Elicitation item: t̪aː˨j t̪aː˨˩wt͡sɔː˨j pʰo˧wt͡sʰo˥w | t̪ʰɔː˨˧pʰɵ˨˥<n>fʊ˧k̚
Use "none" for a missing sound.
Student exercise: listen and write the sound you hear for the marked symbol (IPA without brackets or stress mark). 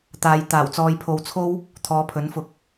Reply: n